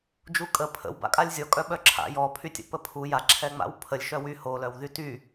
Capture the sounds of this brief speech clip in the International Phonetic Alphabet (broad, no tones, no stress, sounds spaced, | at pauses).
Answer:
d͡ʒ u kʼ ə pʰ ə̰ w b a̰ kʼ a lʲ zʲ ɔ kʼ œ ɓ œ ǁʰ a̰ j ɔ pʰ y tʲ ə̰ p ə pʰ u j a ǁʰ ɛ ŋ͡m a̰ w pʰ ə lʲ ʃ œ w y h o l œ w ð y t y